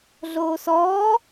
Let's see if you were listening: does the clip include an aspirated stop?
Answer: no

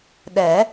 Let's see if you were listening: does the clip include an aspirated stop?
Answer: no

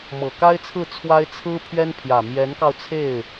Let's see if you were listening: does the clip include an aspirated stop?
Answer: yes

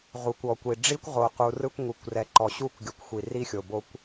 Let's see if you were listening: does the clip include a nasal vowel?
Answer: no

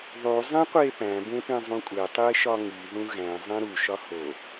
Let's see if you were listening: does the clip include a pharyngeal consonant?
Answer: no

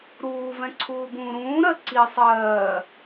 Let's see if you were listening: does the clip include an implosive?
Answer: no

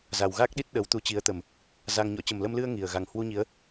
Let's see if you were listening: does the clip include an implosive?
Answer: yes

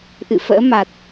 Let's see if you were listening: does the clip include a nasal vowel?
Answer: no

